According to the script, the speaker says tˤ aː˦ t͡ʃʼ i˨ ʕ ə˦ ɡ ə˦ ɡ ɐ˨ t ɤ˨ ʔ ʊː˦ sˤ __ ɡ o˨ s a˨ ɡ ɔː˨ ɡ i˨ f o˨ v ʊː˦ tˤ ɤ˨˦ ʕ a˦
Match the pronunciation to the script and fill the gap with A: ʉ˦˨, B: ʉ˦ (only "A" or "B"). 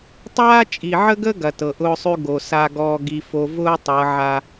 B